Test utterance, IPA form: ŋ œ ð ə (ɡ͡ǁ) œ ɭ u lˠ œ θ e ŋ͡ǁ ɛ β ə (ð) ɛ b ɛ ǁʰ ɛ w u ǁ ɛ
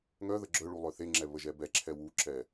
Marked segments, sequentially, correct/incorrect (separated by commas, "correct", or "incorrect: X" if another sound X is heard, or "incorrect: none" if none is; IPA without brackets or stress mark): correct, incorrect: ʒ